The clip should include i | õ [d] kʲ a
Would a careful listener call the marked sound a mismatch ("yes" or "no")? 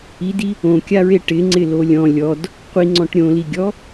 yes